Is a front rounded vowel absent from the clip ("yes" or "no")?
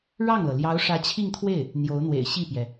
yes